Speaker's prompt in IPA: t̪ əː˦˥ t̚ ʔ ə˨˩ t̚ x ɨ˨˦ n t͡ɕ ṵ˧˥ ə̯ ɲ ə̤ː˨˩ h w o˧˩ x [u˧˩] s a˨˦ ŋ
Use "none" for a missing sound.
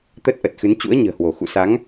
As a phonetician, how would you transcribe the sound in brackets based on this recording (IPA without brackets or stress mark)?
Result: ṵ˧˨